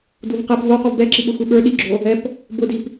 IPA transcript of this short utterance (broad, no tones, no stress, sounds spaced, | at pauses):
d u v q ɛ p v o q u v b ɛ ǁ i ɓ ʊ xʷ i ɓ ə˞ ɗ i ɡ͡ǁ o | ɛ p | b ʊ d i p